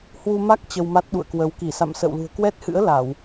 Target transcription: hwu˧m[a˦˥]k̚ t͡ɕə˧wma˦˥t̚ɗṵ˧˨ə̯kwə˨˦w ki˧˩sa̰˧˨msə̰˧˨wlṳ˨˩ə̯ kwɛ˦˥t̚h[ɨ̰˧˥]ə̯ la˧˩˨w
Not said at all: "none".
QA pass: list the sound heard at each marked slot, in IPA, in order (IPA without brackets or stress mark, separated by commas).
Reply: a˦˥, ɨ̰˧˥